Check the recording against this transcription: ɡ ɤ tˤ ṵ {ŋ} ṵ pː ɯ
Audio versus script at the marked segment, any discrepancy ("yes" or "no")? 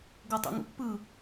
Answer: no